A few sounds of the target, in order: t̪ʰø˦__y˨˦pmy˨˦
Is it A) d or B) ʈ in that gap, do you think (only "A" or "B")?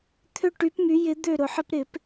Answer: B